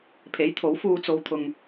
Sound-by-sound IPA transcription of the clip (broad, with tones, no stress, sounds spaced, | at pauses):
pʰ e˨˥ j t̪ʰ o˨˥ w f uː˧ t͡s o˧ w t̪ʰ ʊ˧ ŋ